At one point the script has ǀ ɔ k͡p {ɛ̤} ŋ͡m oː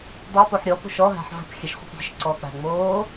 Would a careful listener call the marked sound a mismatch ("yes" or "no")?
yes